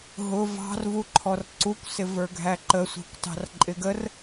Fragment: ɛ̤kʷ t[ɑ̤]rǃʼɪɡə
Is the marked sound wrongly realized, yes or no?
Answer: no